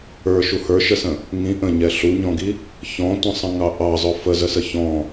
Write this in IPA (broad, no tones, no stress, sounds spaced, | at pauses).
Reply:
ə˞ ʃ u h ə˞ ʃ ə s ə̃ | ŋ ĩ ʔ ə̃ ɲ ɛ ɬ u ɲ ɔ̃ ɡ i | ç ɔ̃ tʷ ə̃ sˤ ə̃ ŋ ɑ ʔ ɑ zˤ ʊ f ə z ə s ə ç ɔ̃